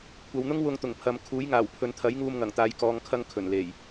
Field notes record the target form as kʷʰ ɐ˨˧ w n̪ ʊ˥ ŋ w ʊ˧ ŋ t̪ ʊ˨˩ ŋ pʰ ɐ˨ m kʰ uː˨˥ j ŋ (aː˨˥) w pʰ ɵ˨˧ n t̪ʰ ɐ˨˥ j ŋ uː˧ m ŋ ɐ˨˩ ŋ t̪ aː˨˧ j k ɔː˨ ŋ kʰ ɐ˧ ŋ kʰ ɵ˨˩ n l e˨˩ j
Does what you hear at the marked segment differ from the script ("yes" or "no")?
yes